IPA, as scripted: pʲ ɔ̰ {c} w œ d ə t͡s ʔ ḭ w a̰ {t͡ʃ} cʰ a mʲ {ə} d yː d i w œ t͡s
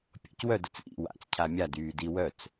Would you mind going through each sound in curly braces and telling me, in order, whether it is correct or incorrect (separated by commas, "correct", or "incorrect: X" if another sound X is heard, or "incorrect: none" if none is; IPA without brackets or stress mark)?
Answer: correct, incorrect: t͡s, incorrect: a